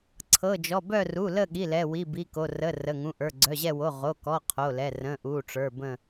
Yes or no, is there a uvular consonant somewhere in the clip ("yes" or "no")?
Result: yes